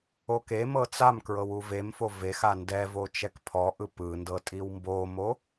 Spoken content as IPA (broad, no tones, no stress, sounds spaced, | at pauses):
o k e m ɤ t͡s a m k ɹ ɤ w u v e m f o v e x a n d ɛ v o t͡ʃ ɛ k pʰ ɔ ʔ ɯ p ɯ n d ɤ tʼ i w m b o m o